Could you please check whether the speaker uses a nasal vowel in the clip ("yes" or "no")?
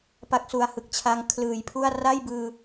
no